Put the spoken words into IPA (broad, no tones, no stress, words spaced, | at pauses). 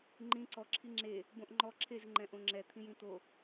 ŋ͡ǃĩ ǀɔ ǁʰiŋ͡ǁe | bõʔŋ͡ǃɔ ǁʰez ŋ͡ǃɛ̃ʔõŋ͡ǁɛ t̪ʰĩjĩt̪o